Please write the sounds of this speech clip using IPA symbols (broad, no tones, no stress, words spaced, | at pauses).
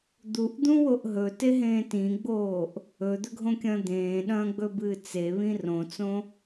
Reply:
d̪uʔd̪ũwoʔ ɦɵteɦẽː tĩɡ͡boːʔ | ɵd̪ɵɡʱõkʲɐ̃ː d̪ẽːɗɐ̃ːɡ͡bɵbɨː t͡seβĩ rõt͡sõ